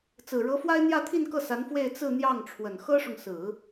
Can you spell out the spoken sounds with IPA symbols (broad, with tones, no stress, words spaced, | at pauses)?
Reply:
t͡sɹ̩˨˩ɻɤ˧˥fwa˥ɪ̯ n̪jä˥˧t̪ʰi˥˧nkɤ˥˩sa˧˥n fwe˥˧ɪ̯t͡sɹ̩˥˧n̪jɑ˥˩ŋʈ͡ʂʰwə˨˩n xɤ˥ʂʊ˨ŋ sɹ̩˨˩˦